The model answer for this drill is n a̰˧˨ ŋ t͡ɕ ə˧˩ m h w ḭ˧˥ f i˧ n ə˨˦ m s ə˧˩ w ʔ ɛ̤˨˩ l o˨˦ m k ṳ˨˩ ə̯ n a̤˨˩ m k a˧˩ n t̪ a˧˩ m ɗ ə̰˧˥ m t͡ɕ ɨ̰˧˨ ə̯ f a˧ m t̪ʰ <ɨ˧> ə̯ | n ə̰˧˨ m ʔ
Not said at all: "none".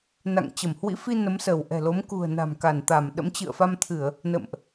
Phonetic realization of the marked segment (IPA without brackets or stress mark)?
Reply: ɨ˧˩˨